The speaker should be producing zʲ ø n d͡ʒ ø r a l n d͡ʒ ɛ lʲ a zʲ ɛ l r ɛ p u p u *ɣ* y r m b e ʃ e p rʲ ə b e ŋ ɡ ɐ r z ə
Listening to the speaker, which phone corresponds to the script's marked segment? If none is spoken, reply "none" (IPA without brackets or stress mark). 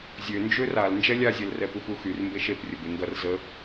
x